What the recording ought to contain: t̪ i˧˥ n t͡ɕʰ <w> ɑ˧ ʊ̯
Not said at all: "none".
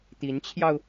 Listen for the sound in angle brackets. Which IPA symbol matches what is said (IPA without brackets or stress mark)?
j